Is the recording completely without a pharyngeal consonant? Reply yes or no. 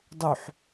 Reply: no